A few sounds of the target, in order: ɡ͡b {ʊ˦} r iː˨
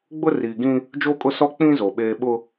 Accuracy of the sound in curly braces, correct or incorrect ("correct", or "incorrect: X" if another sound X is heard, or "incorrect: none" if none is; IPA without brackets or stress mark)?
correct